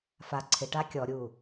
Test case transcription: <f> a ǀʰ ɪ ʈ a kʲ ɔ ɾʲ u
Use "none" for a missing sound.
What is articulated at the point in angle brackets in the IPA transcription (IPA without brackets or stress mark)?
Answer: f